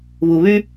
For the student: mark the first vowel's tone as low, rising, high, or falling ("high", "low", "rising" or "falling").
low